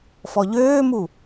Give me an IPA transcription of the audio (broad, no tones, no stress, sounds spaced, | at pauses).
f ɔ ʎ øː m u